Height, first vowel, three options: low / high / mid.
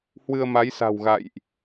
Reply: high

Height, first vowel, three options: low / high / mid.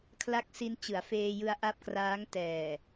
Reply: low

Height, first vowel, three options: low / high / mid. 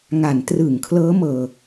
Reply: low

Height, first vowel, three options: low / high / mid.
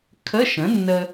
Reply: mid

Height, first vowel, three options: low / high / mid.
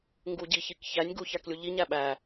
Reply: high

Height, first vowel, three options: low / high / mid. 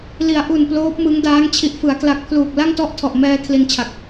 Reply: high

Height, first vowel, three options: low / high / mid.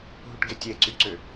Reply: high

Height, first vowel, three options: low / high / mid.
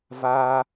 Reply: low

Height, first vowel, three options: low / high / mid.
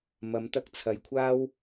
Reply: low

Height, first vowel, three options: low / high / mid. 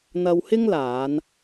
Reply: low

